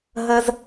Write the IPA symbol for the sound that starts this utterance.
ɦ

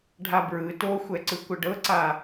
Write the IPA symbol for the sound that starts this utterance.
ɖʱ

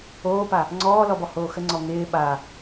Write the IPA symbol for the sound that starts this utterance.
oː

